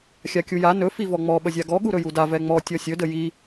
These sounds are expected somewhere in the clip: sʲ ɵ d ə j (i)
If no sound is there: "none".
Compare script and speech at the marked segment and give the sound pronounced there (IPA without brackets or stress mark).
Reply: i